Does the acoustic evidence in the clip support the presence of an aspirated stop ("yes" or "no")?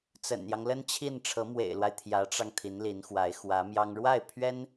yes